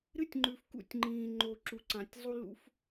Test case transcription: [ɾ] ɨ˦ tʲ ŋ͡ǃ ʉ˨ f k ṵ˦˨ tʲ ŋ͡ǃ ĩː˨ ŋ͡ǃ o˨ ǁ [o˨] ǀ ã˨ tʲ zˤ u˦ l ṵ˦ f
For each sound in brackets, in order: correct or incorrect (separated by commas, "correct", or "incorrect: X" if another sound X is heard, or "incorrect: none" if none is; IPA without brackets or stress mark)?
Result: correct, incorrect: u˨